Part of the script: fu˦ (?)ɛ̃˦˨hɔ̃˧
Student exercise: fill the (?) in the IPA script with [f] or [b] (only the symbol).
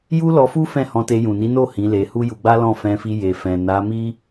f